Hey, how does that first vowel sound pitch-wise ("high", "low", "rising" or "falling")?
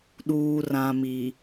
low